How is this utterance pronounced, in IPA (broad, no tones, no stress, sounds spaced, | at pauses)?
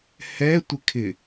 h ɛ tʷ ɪ kʰ ɪ